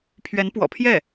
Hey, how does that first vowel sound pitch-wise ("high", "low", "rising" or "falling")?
rising